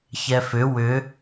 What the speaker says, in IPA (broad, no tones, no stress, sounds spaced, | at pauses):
ç ɛ f ʏ w ʏ